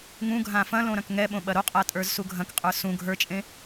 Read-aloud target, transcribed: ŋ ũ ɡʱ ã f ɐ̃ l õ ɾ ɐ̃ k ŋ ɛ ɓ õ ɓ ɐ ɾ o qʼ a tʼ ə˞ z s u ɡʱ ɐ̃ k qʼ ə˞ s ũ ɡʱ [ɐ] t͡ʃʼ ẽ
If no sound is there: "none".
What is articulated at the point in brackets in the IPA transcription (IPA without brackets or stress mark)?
ə˞